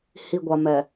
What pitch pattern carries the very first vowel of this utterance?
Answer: low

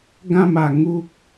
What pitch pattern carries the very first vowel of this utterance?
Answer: falling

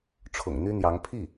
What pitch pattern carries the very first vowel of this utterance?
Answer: low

